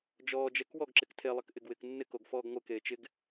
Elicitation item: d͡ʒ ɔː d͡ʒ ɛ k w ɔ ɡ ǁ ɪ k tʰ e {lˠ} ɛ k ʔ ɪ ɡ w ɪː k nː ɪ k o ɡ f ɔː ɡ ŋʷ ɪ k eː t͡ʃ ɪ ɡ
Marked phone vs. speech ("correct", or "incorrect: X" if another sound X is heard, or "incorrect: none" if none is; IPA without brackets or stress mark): correct